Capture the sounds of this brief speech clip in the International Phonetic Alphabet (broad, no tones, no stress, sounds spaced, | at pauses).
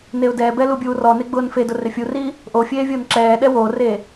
n e ʊ̯ d ɛː b ɛ l u bʲ uː r ɔ n e ɡ͡b ʊː n f e d ʊ r ɪ fʲ u r i | ʔ o fʲ eː vʲ ʊː n ǁ ɛː ɗ ɛ w o r e